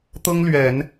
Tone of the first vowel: high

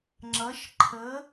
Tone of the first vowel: rising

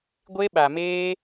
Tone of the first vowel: high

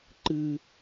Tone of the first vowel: high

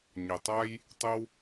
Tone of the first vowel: low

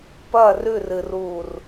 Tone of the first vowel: falling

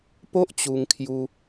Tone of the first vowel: high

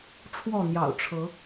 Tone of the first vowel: falling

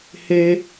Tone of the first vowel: high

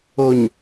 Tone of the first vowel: low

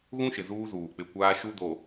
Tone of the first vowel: high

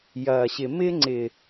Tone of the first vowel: low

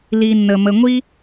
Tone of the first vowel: low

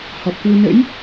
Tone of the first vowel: low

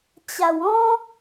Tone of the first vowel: low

